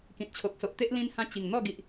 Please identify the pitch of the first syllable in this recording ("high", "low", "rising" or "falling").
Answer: low